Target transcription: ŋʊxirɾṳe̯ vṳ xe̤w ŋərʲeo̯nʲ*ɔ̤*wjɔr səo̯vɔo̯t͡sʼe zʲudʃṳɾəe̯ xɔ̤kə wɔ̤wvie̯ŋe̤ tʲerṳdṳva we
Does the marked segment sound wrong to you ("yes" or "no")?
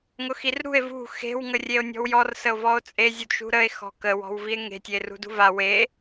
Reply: no